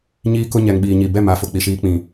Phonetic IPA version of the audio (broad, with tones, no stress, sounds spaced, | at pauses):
ɲ iː˦ k ʊ˦ ɲ ɛ˨ ŋ ɓ iː˨ ɲ i˨ b ɛ˦˨ m a˨ f ʊ˨ k͡p i˨ ʃ iː˦ k͡p ĩ˨